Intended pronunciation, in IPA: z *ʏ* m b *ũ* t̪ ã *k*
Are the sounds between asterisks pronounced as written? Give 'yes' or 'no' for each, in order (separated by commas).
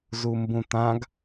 no, yes, no